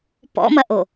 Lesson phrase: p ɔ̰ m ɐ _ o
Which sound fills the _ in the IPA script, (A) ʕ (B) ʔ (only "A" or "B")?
B